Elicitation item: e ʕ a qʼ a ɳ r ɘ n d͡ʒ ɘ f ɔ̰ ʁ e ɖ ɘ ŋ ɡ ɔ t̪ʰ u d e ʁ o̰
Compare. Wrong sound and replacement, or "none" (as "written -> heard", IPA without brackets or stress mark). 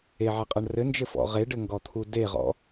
o̰ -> ɔ̰